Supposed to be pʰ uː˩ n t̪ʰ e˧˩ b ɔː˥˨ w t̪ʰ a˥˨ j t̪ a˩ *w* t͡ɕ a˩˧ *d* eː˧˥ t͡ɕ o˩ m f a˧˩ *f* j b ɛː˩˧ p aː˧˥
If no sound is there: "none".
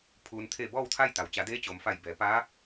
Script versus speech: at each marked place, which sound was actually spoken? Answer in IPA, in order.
w, d, none

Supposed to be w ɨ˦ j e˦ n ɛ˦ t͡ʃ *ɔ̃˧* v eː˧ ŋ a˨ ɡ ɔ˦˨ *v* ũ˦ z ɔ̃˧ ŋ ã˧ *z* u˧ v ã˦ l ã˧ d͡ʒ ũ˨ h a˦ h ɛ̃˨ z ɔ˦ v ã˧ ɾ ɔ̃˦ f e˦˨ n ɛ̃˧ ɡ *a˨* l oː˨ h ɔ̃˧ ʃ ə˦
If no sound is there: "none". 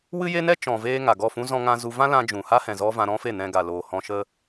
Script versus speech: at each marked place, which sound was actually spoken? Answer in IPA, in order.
ɔ̃˨, f, z, a˨

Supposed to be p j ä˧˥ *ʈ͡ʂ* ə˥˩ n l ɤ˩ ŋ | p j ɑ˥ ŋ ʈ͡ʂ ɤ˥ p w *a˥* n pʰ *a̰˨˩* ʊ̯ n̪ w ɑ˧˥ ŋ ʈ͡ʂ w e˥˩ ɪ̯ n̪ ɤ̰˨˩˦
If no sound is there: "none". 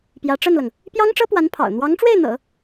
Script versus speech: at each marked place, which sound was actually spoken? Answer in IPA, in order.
ʈ͡ʂ, a˧˥, ɑ̰˨˩

